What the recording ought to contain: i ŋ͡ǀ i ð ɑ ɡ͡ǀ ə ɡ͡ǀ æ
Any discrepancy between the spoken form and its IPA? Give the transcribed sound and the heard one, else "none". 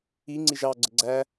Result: ð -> ʒ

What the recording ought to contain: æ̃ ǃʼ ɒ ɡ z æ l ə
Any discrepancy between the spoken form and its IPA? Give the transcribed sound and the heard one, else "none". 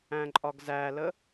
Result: none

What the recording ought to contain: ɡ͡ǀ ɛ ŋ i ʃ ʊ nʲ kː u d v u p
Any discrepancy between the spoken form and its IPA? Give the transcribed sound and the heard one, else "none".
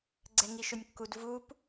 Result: none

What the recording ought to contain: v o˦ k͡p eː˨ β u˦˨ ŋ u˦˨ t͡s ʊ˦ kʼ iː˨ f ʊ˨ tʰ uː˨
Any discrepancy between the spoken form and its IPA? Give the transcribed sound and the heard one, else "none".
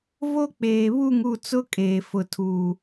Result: iː˨ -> eː˨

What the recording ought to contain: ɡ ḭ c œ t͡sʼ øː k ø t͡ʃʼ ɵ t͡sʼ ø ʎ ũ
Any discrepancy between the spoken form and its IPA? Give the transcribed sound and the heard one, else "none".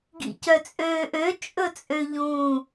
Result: k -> ʔ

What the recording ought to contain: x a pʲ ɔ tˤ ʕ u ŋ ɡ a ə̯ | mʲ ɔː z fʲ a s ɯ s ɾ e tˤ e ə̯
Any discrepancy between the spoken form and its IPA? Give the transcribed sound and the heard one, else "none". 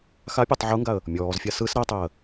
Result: none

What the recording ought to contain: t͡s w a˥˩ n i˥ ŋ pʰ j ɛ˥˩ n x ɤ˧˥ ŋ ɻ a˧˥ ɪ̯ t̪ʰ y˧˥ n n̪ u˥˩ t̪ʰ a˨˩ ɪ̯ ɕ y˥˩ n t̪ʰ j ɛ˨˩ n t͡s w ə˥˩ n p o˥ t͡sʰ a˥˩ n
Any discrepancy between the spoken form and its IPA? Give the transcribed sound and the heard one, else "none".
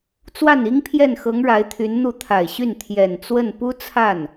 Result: o˥ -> u˥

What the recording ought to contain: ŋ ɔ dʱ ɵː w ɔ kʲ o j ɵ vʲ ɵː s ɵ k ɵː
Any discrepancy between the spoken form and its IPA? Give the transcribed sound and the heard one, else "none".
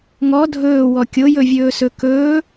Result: none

